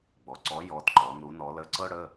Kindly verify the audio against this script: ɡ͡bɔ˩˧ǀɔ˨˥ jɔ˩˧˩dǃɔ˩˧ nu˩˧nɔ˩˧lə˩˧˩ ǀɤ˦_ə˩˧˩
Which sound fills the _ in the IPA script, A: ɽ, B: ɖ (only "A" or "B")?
A